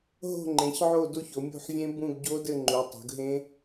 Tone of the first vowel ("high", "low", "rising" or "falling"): falling